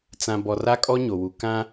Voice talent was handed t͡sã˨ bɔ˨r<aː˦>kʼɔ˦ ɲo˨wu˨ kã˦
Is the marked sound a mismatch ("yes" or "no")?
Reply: yes